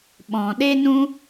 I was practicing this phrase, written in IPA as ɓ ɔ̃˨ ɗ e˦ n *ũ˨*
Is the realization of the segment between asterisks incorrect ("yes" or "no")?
yes